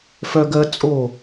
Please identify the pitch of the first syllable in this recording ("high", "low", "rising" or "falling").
high